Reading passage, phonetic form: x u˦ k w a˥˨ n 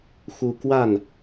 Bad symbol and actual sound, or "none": none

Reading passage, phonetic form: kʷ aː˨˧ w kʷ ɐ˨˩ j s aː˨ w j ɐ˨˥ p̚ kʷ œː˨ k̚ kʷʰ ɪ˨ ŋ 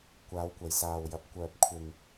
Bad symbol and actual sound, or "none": k̚ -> p̚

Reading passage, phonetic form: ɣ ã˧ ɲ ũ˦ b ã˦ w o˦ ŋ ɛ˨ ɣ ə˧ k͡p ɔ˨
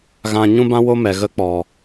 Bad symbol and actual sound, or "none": ŋ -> m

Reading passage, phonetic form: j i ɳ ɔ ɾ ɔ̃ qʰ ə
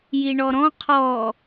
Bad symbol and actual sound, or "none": ə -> ɔ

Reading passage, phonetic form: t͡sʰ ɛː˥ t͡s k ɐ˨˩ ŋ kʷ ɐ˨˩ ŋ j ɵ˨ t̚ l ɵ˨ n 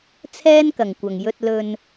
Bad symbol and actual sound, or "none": t͡s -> n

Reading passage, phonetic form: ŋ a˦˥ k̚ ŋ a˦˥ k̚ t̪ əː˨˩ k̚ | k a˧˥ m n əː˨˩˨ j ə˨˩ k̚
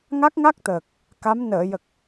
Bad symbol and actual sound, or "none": none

